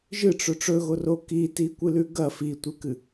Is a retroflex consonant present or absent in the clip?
present